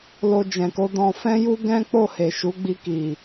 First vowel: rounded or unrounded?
rounded